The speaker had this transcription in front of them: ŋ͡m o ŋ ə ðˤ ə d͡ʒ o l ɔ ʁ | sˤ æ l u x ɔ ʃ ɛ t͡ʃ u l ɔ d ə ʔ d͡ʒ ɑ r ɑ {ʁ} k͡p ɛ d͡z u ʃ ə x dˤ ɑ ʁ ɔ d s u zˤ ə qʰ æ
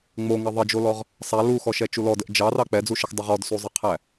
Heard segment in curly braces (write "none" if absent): none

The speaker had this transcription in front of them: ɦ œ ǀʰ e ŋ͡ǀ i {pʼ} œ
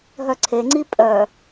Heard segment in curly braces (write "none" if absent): pʼ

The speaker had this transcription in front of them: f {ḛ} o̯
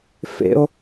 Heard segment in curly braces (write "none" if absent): ḛ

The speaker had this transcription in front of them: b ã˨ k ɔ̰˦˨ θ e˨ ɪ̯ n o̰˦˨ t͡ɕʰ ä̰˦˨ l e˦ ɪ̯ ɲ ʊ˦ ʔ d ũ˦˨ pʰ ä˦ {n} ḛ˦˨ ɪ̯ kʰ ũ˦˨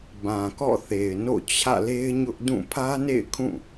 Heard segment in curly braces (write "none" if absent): n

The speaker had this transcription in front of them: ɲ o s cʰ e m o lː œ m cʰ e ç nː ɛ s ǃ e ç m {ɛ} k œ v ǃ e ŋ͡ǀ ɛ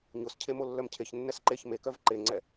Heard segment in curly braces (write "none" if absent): e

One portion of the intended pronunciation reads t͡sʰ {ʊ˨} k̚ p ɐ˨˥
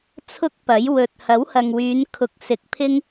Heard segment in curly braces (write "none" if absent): ʊ˥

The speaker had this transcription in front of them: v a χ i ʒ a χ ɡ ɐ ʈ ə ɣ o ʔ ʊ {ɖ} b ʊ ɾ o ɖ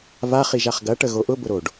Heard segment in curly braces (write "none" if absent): none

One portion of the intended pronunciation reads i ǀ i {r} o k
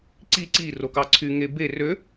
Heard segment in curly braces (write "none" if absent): r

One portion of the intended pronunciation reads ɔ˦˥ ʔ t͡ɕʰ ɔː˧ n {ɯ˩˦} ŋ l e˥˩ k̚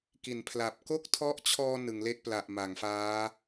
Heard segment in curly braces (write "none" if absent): ɯ˩˦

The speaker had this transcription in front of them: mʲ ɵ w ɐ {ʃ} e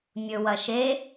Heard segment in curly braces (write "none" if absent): ʃ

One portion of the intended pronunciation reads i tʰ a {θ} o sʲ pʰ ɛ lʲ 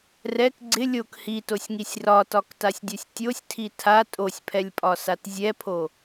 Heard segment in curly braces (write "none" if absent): tʼ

